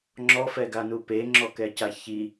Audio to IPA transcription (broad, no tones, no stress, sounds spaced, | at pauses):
ŋ͡ǁ ɔ f ɛ ɡ a n u p e ŋ͡ǁ ɔ k ɛ c a ç i